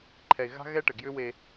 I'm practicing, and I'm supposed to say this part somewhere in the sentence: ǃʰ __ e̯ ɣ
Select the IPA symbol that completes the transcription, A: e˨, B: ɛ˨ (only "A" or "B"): B